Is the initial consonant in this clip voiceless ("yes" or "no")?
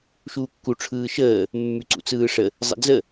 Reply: yes